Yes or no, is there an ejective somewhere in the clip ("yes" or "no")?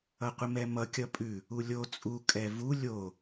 yes